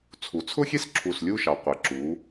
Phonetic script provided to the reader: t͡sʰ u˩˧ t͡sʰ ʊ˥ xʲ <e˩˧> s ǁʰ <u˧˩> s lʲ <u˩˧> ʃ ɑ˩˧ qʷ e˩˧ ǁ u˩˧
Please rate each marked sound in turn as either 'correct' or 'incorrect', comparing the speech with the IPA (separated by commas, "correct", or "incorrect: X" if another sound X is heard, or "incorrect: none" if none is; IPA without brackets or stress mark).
incorrect: e˥, correct, incorrect: u˥˧